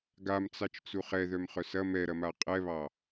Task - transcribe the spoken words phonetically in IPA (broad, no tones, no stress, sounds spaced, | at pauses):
ɡ a m t͡s ɑ t͡ʃ t͡s u χ ɛ ð œ m χ œ s ɐ m ɛ ɾ ɐ m a qʼ ɛ β ɑ